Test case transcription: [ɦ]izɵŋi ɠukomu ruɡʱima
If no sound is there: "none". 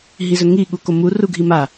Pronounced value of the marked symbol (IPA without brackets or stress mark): ɦ